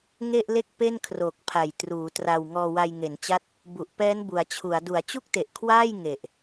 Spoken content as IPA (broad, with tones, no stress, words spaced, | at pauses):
ŋe˥˩ʔle˥˩k̚ pe˥˩nkʰroː˨˩k̚pʰa˨˩j truː˩˦tra˧w ŋɔː˧wa˧jŋe˩˦nt͡ɕa˦˥t̚ | bu˨˩ʔpɛː˦˥n bu˩˦a̯t͡ɕʰu˩˦a̯ du˩˦a̯t͡ɕu˥˩k̚te˨˩ʔkʰwaː˥˩j ŋe˨˩ʔ